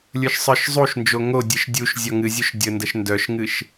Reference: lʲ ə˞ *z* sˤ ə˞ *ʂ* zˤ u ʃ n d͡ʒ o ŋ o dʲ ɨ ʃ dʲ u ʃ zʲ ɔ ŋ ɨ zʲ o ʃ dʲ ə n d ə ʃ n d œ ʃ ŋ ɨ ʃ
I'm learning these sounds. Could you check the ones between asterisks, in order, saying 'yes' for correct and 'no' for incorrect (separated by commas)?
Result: no, no